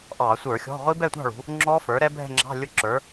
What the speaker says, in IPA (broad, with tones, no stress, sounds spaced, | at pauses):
ʔ ɑ˧˩˧ sʷ ə˞˧˩˧ xʲ ɔ̤˧˥˧ ʁʷ i˦˥ b ɛ˥˨ tʷ ɑ̤˥˨ ɭ ṳ˩˧ | ŋ͡ǁ ɔ˦˥ f ə˞˩˥ ɾ ɛ˦˥ bʱ ɛ̤˥˨ ŋ͡ǁ ɑ̤˧˥˧ lʲ ʊ˥˨ ǁ ə˞˩˥